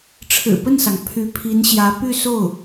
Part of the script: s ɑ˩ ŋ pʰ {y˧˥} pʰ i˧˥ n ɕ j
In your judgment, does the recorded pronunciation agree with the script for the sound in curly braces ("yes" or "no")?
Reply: yes